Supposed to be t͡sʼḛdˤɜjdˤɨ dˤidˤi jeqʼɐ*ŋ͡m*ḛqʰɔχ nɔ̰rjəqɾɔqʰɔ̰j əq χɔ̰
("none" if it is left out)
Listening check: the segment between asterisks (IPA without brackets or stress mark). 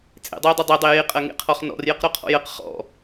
ŋ